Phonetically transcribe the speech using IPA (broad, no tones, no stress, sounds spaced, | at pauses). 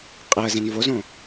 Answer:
qʼ i ə̯ z ẽ n v o z õ